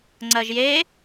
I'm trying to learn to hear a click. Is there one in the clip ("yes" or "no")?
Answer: yes